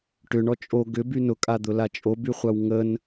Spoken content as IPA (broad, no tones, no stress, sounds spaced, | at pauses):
ʈ ʏ ɳ ɔ t͡ʃʼ o ɡ ʏ b y n ʊ kʼ a d̪ ʊ l a t͡ʃʼ o b y χʷ a w ŋ ə n